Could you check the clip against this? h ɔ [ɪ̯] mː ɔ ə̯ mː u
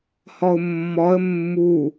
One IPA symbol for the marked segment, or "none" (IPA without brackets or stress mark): ʊ̯